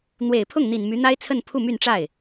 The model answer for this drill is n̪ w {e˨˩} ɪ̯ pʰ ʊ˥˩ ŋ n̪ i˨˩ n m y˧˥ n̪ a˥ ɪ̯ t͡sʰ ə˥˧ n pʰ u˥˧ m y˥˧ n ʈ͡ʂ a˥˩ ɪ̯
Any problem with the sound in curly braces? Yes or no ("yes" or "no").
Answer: no